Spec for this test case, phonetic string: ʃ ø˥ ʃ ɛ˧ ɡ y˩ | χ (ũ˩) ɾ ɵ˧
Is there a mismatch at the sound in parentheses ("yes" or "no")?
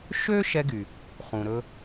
no